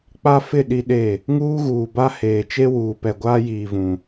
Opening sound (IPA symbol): k͡p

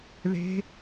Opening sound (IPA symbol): ð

